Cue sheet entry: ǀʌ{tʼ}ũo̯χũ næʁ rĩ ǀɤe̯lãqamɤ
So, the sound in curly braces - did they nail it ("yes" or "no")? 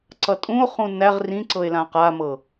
yes